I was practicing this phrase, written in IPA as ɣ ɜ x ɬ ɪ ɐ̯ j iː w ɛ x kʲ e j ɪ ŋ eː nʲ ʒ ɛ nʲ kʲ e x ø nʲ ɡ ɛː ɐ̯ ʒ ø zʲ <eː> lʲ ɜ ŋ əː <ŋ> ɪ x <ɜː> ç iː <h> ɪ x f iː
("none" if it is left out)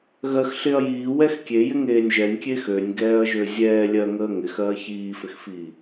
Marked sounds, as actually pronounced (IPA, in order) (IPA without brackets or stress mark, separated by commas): ɛː, ŋ, ɜː, f